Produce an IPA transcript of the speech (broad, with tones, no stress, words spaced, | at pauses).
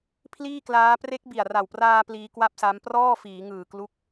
pʰliː˥˩klaː˦˥ pre˦˥k̚bi˨˩a̯ra˨˩wpraː˧ pliː˦˥kwa˥˩p̚sa˦˥m prɔː˥˩fiː˩˦ŋɯː˨˩ klu˦˥k̚